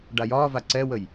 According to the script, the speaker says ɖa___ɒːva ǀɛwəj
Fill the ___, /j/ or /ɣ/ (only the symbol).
j